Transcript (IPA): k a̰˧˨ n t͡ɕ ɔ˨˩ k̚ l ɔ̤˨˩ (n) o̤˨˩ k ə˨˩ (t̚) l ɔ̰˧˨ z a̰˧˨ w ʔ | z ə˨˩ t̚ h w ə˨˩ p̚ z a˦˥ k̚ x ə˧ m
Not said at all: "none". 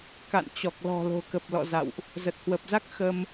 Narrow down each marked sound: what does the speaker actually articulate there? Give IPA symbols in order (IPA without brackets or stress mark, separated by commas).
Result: l, p̚